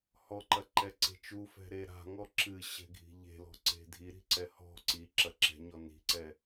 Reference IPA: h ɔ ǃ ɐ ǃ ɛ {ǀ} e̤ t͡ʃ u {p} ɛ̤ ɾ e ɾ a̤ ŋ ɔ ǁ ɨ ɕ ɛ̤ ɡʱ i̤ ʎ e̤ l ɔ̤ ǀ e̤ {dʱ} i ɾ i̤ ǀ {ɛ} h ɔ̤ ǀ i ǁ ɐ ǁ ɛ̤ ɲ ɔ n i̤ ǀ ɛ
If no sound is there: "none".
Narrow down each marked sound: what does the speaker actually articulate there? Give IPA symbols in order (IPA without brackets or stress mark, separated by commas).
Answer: ǀ, f, dʱ, ɛ